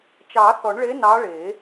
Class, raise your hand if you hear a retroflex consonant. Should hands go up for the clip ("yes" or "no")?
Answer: yes